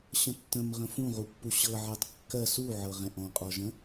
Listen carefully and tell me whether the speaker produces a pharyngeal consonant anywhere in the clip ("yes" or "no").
yes